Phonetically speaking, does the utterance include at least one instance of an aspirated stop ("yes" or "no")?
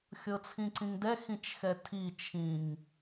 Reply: yes